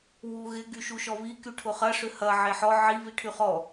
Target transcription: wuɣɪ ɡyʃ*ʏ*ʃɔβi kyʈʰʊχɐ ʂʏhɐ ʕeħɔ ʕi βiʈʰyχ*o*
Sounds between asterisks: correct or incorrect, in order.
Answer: incorrect: u, incorrect: ɔ

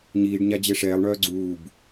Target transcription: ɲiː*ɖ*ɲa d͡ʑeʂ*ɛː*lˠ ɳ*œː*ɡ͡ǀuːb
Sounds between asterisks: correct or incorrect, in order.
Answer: correct, correct, correct

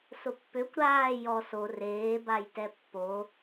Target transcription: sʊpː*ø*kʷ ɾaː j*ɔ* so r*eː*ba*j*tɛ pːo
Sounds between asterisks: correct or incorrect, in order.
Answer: correct, correct, correct, correct

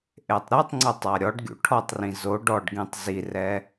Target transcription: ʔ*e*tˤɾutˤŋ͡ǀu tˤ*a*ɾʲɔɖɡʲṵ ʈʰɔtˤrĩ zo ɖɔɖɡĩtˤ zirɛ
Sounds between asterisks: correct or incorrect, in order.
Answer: correct, correct

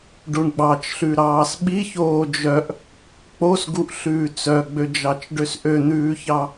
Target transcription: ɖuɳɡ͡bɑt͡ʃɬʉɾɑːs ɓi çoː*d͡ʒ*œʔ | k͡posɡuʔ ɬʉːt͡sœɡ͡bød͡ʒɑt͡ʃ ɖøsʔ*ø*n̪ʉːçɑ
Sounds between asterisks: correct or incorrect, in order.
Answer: correct, correct

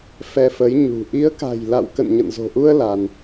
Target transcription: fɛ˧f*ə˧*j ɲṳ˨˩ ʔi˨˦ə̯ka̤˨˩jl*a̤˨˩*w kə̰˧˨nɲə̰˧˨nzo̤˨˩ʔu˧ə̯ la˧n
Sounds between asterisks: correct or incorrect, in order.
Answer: incorrect: ə˨˦, incorrect: a̰˧˨

